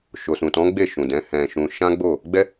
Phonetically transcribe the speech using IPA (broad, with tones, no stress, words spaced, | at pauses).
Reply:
ʃo˨sũ˨tɔ̃˨˦ ɡ͡be˦˨ʃũ˨dɛ̃˨˦ hɛ̃˧ʃũ˧ ʃã˦ɡ͡bo˦˨ | ɡ͡bɛ˦